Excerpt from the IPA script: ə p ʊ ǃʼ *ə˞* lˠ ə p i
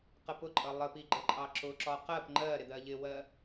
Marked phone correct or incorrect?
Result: incorrect